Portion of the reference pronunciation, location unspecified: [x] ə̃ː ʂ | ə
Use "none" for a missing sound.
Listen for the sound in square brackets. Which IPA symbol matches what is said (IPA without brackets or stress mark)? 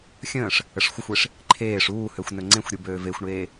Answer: xʲ